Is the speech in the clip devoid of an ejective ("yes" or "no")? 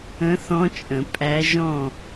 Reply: no